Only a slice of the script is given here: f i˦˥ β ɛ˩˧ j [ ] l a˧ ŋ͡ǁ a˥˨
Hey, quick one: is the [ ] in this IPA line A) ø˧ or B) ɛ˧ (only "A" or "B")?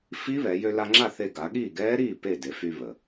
A